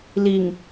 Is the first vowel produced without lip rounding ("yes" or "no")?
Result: yes